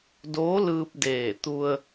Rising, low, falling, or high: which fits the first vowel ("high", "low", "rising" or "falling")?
rising